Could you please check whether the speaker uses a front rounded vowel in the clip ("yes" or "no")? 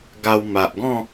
no